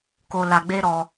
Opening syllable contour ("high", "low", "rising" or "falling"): low